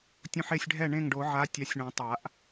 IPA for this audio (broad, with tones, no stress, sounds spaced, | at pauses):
tʲ õ˧ ħ e˥˩ sʲ ɖʱ ɛ˥˩ ɳ ẽ˥˩ ŋ ɖ o˨˩˦ ʕ a˨˥ tʲ a˨˥ sʲ ɳ õ˨˩˦ tˤ a˨˩˦ ʔ